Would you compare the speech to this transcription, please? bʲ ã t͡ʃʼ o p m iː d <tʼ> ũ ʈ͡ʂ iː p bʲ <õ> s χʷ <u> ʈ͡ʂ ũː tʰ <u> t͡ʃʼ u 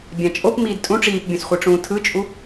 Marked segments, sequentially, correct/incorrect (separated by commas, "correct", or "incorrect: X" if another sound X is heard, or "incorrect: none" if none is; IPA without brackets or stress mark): correct, correct, incorrect: ɯ, incorrect: ɯ